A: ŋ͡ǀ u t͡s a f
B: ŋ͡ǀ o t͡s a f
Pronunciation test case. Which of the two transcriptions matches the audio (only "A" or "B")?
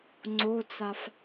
B